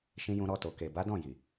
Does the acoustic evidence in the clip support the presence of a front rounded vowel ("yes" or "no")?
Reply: no